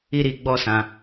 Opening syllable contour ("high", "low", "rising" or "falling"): high